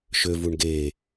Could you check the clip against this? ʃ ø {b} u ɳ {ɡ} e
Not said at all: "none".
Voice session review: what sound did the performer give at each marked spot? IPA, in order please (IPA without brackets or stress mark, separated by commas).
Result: v, ɡ